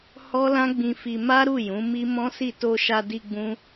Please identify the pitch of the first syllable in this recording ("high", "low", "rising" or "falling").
high